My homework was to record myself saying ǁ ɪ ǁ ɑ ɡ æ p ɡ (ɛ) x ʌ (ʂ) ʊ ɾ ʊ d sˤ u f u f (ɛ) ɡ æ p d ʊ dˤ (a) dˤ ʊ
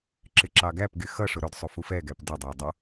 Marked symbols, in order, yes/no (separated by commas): no, yes, yes, no